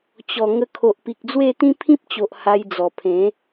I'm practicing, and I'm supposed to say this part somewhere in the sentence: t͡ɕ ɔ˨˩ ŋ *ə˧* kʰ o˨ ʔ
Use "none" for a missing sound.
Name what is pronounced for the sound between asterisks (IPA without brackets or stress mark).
ə˧